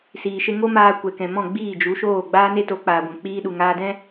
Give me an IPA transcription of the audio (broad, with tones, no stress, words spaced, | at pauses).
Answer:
siː˨ʃe˧ŋo˦maː˧ kʷɛ˨ kɛ̃˨mɔ̃˦˨ ɡ͡biː˦˨d͡ʒu˨˦ʃoː˦˨ ɡ͡baː˦ne˦ to˨˦ k͡paː˨ɡʷɛ̃˨ k͡piː˧ɗu˨ŋaː˧dɛ̃˦